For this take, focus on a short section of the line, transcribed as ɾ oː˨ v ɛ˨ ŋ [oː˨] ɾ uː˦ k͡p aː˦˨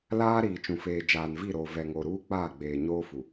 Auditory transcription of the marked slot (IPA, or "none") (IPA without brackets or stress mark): o˨